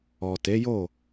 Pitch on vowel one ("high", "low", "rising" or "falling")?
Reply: low